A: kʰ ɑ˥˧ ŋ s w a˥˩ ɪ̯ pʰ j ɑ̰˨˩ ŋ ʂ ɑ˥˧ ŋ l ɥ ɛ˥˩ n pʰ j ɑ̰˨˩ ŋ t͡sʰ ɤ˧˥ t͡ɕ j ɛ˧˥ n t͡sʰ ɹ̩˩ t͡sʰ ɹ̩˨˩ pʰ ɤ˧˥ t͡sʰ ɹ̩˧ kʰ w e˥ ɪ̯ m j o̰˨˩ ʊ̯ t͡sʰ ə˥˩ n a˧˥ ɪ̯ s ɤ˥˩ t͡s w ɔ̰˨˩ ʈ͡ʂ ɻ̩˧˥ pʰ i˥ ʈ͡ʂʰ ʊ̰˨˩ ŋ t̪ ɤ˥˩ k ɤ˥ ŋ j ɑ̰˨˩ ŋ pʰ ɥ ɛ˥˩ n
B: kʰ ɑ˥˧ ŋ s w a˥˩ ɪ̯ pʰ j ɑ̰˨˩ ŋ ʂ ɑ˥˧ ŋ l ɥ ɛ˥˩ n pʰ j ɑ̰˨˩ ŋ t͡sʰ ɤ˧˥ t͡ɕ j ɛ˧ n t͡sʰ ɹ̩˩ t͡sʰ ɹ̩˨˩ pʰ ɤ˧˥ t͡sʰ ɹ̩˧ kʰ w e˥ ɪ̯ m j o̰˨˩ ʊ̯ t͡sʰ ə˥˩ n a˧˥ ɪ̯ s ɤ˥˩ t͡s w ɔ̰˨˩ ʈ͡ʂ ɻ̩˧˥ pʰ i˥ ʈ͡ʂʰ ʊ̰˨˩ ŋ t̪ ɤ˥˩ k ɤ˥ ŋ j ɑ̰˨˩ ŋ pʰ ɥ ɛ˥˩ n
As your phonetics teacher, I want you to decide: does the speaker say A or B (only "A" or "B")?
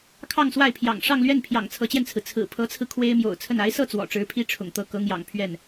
B